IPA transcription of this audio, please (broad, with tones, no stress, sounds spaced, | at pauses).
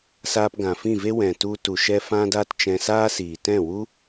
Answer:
s aː˧ p ɡ ã˨ f ĩ˦˨ v e˦ w ɛ̃˨ t u˧ t u˨ ʃ ɛ˧ f ã˧ d aː˧ t t͡ʃ ɛ̃˧ s aː˦ s iː˨ t ɛ̃˦˨ w u˦